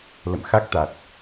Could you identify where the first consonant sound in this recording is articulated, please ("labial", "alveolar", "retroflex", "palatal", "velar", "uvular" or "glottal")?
alveolar